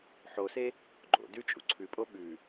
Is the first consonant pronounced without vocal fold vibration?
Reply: yes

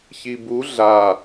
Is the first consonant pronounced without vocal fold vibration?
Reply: yes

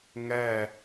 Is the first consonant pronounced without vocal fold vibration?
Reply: no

